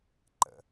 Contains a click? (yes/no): yes